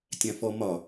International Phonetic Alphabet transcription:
tʲ ã f ɔ m ɒ

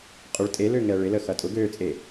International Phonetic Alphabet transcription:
qʼ ʊ ɭ tʼ e l ø ŋ ɛ ɭ ɪ l ə x ɐ tʼ ʊ ɡ ø t͡sʼ e

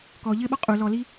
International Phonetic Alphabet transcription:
k ɔ ʎ ɘ ɓ ɔ qʼ u l ɔ l i

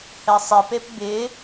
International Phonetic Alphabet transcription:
h ɛ sˤ ɪ p e p b ɪ

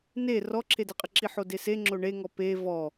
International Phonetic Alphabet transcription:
n e r ɔ ǁʰ e d ɪ qʼ ɪ ǁ i ħ o d e s e ŋ͡ǁ o ɳ e ŋ ɔ p e v ɔ

